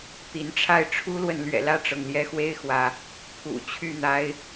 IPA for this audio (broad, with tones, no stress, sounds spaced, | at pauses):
t̪ i˨˦ n ʈ͡ʂʰ a˥˨ ɪ̯ ʈ͡ʂʰ u˦ l w ə˨ n l ɥ ɛ̰˨˩ l ä˥˨ ʈ͡ʂ ɤ˩ ŋ l j ɛ˦ x w e˦ ɪ̯ x w ä˨˦ | pʰ ṵ˨˩ t͡ɕʰ y˥˨ n̪ a˦ ɪ̯